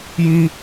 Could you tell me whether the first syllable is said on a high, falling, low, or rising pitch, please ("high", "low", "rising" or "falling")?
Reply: high